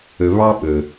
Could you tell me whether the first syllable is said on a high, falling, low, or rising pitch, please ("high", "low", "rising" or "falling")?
low